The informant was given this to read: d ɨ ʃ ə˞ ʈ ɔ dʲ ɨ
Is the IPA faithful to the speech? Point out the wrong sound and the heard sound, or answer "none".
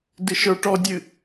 none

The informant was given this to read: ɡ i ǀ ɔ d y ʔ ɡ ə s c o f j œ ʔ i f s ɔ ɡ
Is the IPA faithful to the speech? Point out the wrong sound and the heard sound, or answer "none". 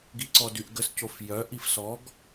none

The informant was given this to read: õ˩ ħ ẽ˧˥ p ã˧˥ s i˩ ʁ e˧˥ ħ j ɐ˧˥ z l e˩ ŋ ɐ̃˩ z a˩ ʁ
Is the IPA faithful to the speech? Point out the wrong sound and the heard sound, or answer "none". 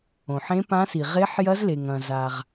none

